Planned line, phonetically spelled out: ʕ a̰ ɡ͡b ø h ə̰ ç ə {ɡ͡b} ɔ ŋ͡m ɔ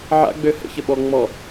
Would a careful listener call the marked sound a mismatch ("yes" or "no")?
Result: yes